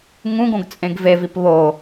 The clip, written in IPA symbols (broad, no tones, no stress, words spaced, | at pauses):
ŋũɡõɡ t͡sʼẽɡvevip βo